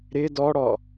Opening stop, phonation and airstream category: plain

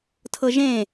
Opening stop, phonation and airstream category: aspirated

